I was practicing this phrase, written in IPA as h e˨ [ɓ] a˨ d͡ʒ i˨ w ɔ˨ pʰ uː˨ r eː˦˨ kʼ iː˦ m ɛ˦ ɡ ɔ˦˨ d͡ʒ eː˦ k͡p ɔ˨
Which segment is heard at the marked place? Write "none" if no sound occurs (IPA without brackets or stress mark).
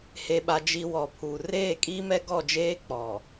ɓ